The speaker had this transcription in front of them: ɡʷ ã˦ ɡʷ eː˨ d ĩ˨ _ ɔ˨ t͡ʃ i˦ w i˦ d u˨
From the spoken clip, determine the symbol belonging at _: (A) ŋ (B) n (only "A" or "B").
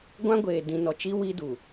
B